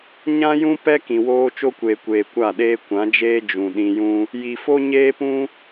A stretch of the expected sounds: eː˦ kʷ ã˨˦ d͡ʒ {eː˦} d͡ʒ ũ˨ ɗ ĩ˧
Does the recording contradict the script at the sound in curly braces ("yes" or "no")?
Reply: no